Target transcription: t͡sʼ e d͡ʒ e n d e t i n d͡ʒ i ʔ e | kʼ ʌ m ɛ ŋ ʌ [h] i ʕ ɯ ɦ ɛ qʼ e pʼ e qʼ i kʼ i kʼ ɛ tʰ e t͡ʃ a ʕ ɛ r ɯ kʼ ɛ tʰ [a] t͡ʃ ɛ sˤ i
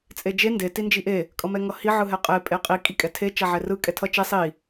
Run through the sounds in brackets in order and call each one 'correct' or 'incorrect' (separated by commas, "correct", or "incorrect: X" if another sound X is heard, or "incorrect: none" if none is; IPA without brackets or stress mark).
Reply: correct, incorrect: ʌ